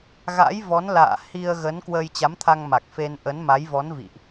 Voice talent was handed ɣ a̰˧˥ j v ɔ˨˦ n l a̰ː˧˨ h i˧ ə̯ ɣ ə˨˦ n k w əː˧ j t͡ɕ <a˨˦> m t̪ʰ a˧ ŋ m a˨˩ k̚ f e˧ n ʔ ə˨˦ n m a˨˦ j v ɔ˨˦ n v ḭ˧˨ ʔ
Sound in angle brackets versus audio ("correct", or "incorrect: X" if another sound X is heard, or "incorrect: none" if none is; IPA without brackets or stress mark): correct